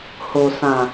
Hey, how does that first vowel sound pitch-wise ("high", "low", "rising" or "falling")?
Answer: low